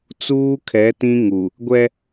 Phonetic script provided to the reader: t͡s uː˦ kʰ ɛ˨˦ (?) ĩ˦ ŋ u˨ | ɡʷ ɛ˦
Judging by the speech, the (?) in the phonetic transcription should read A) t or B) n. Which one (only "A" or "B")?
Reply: A